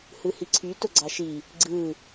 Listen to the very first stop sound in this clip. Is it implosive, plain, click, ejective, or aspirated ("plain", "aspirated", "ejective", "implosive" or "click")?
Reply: click